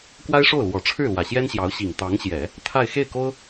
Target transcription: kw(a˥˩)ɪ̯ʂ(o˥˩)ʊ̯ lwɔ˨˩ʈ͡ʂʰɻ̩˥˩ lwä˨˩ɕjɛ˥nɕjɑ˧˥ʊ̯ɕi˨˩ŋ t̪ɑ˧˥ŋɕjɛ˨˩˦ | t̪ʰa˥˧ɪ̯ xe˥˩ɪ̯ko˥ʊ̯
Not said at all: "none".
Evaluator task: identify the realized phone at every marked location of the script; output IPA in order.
a˥, o˥˩

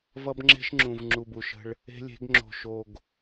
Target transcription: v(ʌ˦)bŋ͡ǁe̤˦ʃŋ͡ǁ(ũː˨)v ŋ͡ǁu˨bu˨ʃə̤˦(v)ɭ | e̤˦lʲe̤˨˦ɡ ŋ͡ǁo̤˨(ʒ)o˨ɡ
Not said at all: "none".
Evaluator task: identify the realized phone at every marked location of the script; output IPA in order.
ʌ˦, ũ˨, none, ʃ

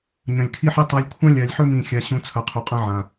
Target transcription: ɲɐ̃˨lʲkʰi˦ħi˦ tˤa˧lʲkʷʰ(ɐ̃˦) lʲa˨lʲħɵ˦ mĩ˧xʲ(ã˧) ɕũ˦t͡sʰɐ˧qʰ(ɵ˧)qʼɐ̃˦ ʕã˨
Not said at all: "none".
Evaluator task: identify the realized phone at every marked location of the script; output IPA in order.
ɐ̃˦, a˧, o˧

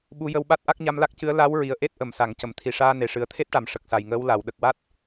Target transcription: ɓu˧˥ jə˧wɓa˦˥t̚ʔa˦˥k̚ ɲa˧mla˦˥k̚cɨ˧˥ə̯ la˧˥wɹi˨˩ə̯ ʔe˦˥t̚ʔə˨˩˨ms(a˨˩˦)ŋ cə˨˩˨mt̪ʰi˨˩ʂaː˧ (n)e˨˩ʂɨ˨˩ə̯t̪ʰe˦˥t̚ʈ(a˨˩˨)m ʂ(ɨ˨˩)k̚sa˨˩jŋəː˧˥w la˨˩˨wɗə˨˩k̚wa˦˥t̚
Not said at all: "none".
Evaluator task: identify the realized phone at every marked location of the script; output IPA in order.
a˨˩˨, n, a˨˩˨, ə˨˩

